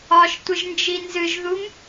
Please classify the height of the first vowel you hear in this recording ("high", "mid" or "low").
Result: low